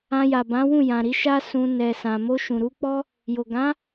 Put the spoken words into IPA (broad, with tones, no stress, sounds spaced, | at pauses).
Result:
ã˧ j a˨ b ã˨˦ w ũ˦˨ j ã˨ ɾ i˨˦ ʃ a˦ s ũ˧ n ɛ˨ s ã˨ m o˧ ʃ ũ˨ ɾ u˨˦ k͡p ɔ˦ | j o˨ ɡ ã˨˦